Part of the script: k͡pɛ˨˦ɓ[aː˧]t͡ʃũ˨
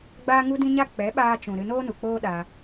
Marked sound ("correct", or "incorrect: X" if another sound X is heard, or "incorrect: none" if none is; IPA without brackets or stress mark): correct